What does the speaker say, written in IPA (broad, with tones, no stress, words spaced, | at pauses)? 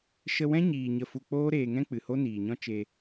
ʃə˧wɛ̃˦ɲiː˨ ɲə˧fu˧ k͡poː˦ɾeː˧ŋɛ̃˦ k͡pɨ˨ho˦niː˨ɲɔ̃˦ t͡ʃe˧